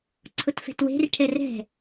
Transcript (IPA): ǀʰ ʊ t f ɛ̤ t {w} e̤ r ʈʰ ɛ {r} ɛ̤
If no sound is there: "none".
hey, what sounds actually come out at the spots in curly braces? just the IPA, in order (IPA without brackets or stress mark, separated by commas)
w, r